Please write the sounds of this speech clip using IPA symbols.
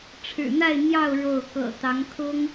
ʈ͡ʂʰ ɻ̩˨˩ n̪ a˥˧ ɪ̯ n̪ j ɑ˥˧ ʊ̯ ɻ o˥˩ ʊ̯ k ɤ̰˨˩ t̪ ɑ˧˥ ŋ kʰ ʊ˥ ŋ

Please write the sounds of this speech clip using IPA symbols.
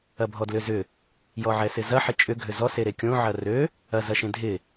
ɐ bʱ ɔ d l ʏ z ʏ | j ɔ ʕ ɛ s ɪ z ɐ ħ ɪ t͡ʃʼ ʏ ɡʱ ø z ɔ s e ɾ e kʲ õ ʕ ɐ r ø | ɐ z ɐ ʃ ẽ dʱ ɪ

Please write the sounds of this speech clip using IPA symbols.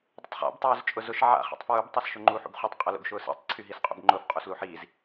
dˤ ʊ tˤ χ a̰ b tˤ ʊː z t͡ʃʼ ʊ z ʊ ʃ ʕ a̰ χ ḭ tˤ f ɹ u b tˤ y s ʃ ʊ ŋ͡ǃ u ħ ṵ b χ u tˤ qʼ ʊ l ṵ ɡ ʃ ʊː s ḭ tˤ ǀʰ y ɦ i s qʼ ṵ b ŋ͡ǃ ʊː f qʼ u s l u ħ iː z

